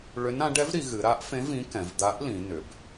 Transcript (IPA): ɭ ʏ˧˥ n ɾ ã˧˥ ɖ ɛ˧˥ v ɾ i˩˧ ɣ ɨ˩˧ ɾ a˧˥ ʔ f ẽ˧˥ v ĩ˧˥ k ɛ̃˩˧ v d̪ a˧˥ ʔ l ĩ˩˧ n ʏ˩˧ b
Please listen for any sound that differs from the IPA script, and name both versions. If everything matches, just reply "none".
none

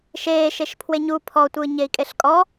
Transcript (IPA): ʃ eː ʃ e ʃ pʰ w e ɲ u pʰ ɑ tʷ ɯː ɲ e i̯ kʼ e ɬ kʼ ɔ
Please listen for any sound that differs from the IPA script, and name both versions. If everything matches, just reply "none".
ɑ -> ɔ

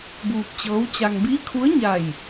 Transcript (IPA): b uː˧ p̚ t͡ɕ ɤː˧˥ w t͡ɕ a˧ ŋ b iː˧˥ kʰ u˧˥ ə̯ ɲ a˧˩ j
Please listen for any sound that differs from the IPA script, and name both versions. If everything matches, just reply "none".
none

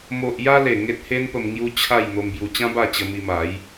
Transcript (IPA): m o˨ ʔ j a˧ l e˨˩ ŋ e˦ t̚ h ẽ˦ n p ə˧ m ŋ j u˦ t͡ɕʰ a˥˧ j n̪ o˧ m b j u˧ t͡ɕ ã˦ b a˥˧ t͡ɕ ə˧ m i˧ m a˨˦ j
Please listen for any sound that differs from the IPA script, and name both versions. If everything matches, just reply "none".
ẽ˦ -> e˦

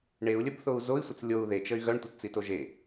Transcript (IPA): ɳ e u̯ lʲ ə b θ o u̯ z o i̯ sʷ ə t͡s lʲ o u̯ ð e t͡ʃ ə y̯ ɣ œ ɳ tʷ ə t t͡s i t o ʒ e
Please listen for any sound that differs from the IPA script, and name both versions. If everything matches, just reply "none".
none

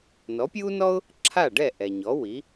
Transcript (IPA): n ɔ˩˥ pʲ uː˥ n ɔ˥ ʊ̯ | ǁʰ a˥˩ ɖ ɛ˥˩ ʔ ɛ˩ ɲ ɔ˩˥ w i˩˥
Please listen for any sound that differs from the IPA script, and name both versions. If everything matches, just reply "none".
none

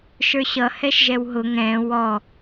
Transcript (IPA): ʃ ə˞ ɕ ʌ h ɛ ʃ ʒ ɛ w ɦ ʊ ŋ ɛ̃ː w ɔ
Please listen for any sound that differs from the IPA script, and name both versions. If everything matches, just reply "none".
none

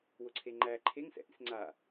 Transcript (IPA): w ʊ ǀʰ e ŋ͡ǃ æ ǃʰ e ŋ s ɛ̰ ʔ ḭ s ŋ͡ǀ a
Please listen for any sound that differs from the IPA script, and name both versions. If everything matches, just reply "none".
none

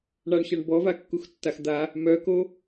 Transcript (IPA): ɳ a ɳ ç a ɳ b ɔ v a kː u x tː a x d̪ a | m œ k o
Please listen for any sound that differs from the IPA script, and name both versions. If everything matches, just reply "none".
none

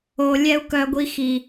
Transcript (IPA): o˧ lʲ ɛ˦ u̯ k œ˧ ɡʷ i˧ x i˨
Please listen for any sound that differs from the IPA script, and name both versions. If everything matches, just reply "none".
none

